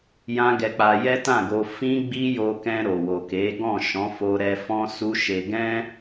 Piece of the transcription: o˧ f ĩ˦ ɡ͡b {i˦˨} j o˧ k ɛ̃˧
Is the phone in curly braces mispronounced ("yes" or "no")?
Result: yes